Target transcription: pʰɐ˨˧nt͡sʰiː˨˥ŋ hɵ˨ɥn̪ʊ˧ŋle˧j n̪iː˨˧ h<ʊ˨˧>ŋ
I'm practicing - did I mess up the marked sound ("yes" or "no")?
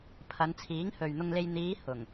yes